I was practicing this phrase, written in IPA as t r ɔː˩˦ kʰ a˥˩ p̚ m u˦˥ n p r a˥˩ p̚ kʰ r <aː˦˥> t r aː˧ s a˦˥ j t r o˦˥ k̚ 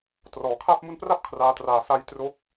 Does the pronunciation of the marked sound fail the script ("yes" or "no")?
no